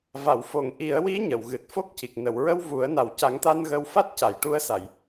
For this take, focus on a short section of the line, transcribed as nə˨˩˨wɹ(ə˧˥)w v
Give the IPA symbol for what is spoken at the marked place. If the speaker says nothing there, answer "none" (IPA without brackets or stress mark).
ə˧